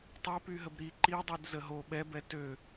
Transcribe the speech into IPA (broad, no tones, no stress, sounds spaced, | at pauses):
tˤ œ p y ɦ ə b ɾ i ǃ i dˤ y d z ə ɦ o ɓ ɛ b ɛ t ø